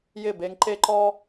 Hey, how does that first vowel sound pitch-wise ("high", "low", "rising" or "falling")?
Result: falling